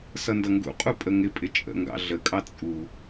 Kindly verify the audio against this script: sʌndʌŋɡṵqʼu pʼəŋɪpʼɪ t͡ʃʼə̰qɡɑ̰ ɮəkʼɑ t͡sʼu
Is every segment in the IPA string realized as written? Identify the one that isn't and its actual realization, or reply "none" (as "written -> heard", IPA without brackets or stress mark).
q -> ŋ